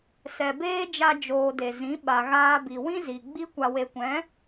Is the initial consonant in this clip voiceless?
yes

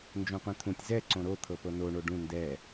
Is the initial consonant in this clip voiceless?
no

